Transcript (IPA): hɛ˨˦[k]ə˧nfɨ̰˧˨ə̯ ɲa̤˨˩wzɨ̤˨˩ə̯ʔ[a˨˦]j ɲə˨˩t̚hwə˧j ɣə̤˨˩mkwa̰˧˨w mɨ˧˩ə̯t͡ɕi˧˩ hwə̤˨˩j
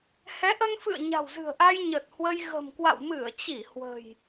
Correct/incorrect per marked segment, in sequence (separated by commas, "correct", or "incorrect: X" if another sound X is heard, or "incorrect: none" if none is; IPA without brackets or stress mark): incorrect: ʔ, incorrect: a˧